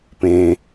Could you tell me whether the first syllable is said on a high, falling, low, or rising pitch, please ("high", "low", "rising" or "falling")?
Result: high